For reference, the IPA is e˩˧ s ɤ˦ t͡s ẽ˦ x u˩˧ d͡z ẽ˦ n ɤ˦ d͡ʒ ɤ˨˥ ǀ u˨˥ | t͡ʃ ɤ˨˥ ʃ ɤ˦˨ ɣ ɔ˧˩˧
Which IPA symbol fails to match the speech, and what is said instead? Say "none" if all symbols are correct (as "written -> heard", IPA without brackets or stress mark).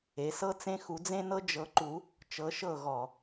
ǀ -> ǃ